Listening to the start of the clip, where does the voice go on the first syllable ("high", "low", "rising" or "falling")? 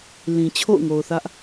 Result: low